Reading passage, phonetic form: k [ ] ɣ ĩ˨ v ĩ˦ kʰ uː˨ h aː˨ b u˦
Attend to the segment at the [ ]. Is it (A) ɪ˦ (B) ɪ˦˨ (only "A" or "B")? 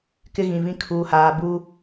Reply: A